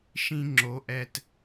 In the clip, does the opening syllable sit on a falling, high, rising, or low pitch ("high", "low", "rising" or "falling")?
high